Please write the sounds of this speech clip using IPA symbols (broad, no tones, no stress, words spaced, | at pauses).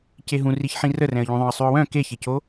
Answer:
ceɦũriçħĩ rərɛ̃ə̯ʎũ ðˤœ̃ə̯sˤʉʊ̯wœ̃ keçeco